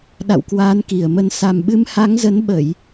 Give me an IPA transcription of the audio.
ɗ a̰˧˨ w k w aː˨˦ n k i˨˩ ə̯ m ə˧ n s a˨˩ m ɓ ɨ˨˦ m h a˨˦ ŋ z ə˨˦ n ɓ ə˧˩˨ j

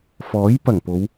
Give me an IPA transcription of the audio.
f ɔː˨˥ j p ɐ˨˩ ŋ p o˨˧ w

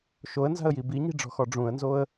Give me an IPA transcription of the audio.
ʃ o ə̯ n z a̤ ə̯ j i b i ɲ i̤ ɖ͡ʐ ɔ̤ x ɔ ɖ͡ʐ ũ ə̯ n z o ə̯

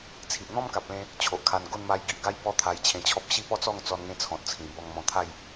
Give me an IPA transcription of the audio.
t͡sʰ i˨ ʔ n̪ ɔ̃˦ m k a˨ p̚ l ẽ˧ | t͡ɕʰ o˨ ʔ kʰ a˧ n ɡ o˥˧ n m a˧ j ɡ i˨ ʔ ɡ a˦ j b ɔ˥˧ t̪ʰ a˧ j t͡ɕʰ ẽ˧ t͡ɕʰ ɔ˦ p̚ ɕ i˥˧ p ɔ˦ t͡s ɔ˥˧ ŋ t͡s ɔ˧ n ŋ ẽ˦ t͡sʰ ɔ̃˨ t̚ t͡sʰ ĩ˨˩ b ɔ˧ ŋ m ɔ̃˧ t̪ʰ a˥˧ j

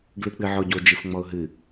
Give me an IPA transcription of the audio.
ɡ l ɨ k͡p ɨ ʕ ɔ ɟ o d͡ʒ ɨ f ŋ͡m ɔ ʊ̯ ɦ ɨ

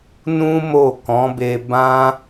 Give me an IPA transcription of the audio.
n ũ˦ m o˦˨ k ɔ̃˨˦ b e˧ b ã˦

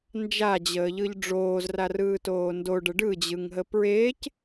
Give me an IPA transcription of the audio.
n d͡ʒ a d͡ʑ əː ʎ ɯ ʎ ɖ͡ʐ oː z r a r ɯː t oː n d o ɖ ə ɖ ɯ d͡ʑ ɯ ŋ ɦ ə p ɹ eː c

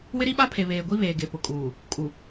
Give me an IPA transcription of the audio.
w ɪ˦ ɾ i˦ ɓ a˦ pʰ e˨ β eː˨ ɡʷ i˦ β eː˨ ɡ e˨ p ʊ˨ kʼ uː˨ | kʼ u˨

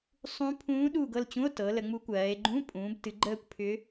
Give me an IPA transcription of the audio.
sˤ ũ˧˥ pʰ ũː˧˥ ɗ u˦˨ ɡ ɤ˦˨ l t͡ɕ ũ˧˥˧ o̯ t ɤ˩˧ l ə˩˧ ŋ͡m u˧˥ kʷ ɜː˩˧ e̯ ɡ͡ǃ ũ˧˥˧ pʼ ũː˩˧ b t ɨ˩˧ ɡ͡ǃ əː˦˨ kʷ pʰ ʏ˧˥

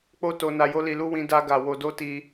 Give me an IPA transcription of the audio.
k͡p o˦ t o˧ n a˧ j o˦ l i˧ l u˦ w ĩ˧ d a˦ ɡ a˧ w o˧ d o˦ t i˧

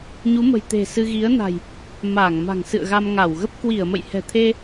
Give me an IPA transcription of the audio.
ɲ u˨˦ m ə̤˨˩ j t̪ e̤˨˩ s ɨ˧ ɣ i˨˦ ə̯ n a̤˨˩ j | m aː˧˩ ŋ m a̤˨˩ ŋ s ɨ̰˧˨ ə̯ ɣ a˧ m ŋ a˧˩ w ɣ ə˦˥ p̚ k w i˧˩ ə̯ m ə̰˧˨ j h ɛ̤˨˩ t̪ʰ e˧

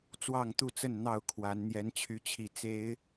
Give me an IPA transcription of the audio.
t͡s w ɑ˥˨ ŋ t̪ u˥˨ t͡s ə˥˨ n n̪ ɑ˥˨ ʊ̯ kʰ w a˨˦ n n̪ j ɛ˨˦ n t͡ɕʰ y˨˦ t͡ɕʰ i˨˩ t͡s e˨˦ ɪ̯

